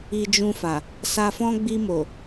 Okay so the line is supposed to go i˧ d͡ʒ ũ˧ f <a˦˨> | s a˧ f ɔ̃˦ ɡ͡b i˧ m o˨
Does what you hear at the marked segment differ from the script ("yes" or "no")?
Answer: yes